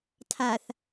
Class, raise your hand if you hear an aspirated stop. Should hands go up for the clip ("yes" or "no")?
yes